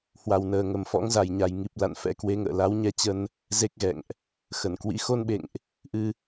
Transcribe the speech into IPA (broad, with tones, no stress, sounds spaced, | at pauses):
h w a˨˩ w n əː˨˩ ŋ ə˨˩ m f ɔ̰˧˥ ŋ z a˨˩ j ɲ a˨˩ j ŋ i˨˩ p̚ l a̰˧˨ n f ɛ̰˧˥ k w e˨˦ ŋ ə̰ː˧˨ l a˨˦ w ɲ ɛ˧ t͡ɕ ə˧ n | z e˦˥ k̚ ɣ ɛ̰˧˨ ŋ ʔ | x ə˧˩ n k w ḭ˧˥ x o˧ n ɓ ḛ˧˨ ŋ ʔ | ʔ ɨ˧